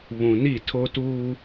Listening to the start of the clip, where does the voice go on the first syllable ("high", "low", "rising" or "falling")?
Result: low